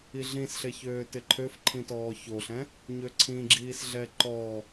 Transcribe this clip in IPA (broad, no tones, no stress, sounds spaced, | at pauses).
i ɮ ĩ s ɬ e ç øː t ɪ ǃʰ ø f ǃʰ ĩ t ɔː ç o ɬ ɛ̃ | ɲ ø ǀʰ ĩ ɡ͡ǁ iː s ɮ ɛ ǃ ɔ